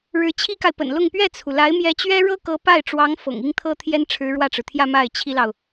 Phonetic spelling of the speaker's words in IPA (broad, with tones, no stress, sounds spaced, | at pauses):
ɻ ɻ̩˧˥ t͡ɕʰ i˥ k a˨ ɪ̯ p ə̰˨˩ n l ʊ˥˧ ŋ p ɥ ɛ˥˩ t͡sʰ u˩ l a˧˥ ɪ̯ m j ɛ˧˥ t͡ɕ ɥ ɛ˥ ɻ ɤ˥ k ɤ˧˥ p a˥˩ ɪ̯ ʈ͡ʂ w ɑ˧˥ ŋ f ɤ̰˨˩ ŋ i˥ ŋ t̪ʰ ɤ˥ t̪ʰ j ɛ˥ n ʈ͡ʂʰ ɻ̩˧˥ ɻ w ä˥˩ ʈ͡ʂ ɻ̩˩ t̪ʰ j ä˥˧ m a˥˩ ɪ̯ t͡ɕʰ i˥ l ɑ˨ ʊ̯